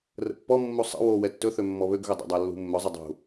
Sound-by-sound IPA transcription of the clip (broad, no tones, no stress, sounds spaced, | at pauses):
r ə̰ pː ɔ mː u sˤ ə̰ w o w ɛ tː ɵ θ ø mː ɔ β ø ɡ ɣ ɵ dˤ ə̰ dˤ a lː ṳ mː ɵ zˤ ə dˤ ṳ